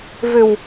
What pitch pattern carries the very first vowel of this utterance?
low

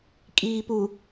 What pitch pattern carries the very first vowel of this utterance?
low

